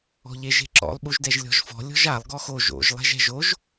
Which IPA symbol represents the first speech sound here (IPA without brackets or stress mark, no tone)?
ɔ̤